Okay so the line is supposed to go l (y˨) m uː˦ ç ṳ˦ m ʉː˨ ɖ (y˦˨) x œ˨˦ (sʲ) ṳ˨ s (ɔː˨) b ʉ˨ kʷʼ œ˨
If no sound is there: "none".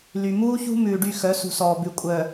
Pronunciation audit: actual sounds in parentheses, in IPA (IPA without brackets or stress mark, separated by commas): y˨, y˦˨, s, ɔː˨